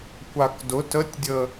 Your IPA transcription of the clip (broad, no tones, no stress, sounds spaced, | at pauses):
kʷ a k d ʊ t ə tʲ dʲ ə